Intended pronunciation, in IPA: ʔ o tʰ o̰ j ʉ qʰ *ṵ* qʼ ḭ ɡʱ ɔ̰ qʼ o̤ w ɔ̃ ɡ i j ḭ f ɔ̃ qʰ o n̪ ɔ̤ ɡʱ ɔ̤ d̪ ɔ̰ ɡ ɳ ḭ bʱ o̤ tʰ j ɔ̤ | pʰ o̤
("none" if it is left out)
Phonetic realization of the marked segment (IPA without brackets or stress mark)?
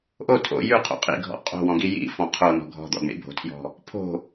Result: o̰